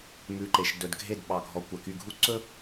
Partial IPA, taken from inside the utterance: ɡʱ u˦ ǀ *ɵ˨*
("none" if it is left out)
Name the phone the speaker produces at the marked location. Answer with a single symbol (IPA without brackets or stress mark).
ɵ˦